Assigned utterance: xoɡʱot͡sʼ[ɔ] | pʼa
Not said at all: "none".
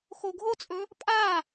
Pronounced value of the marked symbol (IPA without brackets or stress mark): ɵ